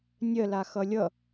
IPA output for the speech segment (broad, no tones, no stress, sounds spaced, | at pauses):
nʲ ɜ l a x ʌ lʲ ʌ